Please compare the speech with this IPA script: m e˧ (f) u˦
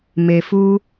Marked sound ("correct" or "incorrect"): correct